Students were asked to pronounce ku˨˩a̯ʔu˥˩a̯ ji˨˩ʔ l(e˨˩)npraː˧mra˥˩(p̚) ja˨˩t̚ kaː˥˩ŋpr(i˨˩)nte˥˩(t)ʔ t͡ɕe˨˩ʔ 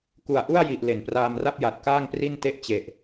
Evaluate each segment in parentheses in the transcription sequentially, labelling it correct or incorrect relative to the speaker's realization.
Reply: correct, correct, incorrect: i˥˩, incorrect: none

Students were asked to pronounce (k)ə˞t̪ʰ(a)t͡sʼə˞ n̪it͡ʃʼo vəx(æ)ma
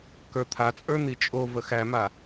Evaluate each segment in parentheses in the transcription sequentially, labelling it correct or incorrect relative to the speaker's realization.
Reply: correct, correct, correct

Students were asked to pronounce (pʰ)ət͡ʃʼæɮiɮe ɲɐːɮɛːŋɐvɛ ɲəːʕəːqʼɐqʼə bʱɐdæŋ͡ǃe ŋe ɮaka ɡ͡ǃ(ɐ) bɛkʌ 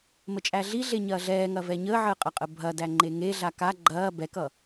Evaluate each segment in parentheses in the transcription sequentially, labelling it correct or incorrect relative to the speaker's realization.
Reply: incorrect: m, incorrect: ɐː

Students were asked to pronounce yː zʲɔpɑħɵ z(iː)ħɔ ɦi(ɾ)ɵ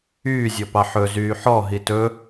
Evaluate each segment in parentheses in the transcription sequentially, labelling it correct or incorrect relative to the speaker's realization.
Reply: incorrect: yː, incorrect: t

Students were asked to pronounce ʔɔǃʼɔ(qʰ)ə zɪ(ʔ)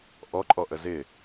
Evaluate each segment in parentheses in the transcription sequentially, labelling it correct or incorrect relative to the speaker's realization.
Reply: incorrect: ʔ, incorrect: none

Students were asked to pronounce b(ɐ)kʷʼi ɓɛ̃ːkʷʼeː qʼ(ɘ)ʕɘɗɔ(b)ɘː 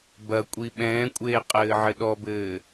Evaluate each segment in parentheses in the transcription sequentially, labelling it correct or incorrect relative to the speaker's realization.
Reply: correct, incorrect: ɘː, correct

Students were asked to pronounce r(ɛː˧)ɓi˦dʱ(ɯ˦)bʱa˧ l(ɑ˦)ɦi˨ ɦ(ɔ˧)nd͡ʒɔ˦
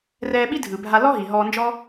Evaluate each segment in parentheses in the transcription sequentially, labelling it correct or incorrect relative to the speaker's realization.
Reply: correct, incorrect: ɯ˨, incorrect: ɔ˦, incorrect: ɔː˧

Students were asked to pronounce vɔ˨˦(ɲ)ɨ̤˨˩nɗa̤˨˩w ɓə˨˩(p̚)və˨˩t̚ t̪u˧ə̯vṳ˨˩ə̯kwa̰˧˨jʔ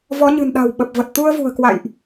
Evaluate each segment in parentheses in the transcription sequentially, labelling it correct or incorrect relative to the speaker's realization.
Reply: correct, correct

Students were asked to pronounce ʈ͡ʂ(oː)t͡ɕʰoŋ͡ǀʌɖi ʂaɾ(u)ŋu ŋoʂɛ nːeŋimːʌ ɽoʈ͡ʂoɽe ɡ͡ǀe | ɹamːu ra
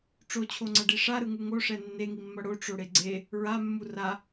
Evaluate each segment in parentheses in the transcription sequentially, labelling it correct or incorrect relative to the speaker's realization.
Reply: incorrect: o, incorrect: ɯ

